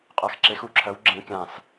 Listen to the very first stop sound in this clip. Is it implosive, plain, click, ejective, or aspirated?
ejective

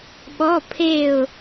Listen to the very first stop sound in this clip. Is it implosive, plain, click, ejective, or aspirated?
implosive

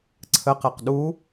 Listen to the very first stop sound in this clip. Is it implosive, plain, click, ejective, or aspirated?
click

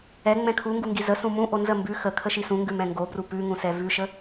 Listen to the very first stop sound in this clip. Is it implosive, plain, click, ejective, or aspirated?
aspirated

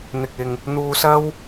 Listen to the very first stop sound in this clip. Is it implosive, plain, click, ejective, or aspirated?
plain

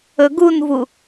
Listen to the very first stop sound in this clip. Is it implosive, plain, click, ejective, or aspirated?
plain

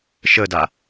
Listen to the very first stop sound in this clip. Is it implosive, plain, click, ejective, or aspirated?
plain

